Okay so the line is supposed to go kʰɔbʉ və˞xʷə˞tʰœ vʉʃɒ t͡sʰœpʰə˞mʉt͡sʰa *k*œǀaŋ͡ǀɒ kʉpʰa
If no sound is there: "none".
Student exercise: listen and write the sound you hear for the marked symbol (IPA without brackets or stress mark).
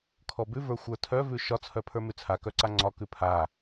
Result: k